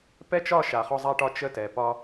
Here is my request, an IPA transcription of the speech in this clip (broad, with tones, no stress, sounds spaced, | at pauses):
p ɛ˦ t͡ʃ ɒ˦˨ ʃ a˨ χ ɔ˦ zˤ a˦ ʈ ɒ˦ t͡ʃ ə˦˨ t ɛ˨ p ɒ˦